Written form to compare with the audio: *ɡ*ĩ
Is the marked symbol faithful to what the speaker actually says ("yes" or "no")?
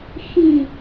no